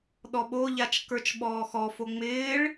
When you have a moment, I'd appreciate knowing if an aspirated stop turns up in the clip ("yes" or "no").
no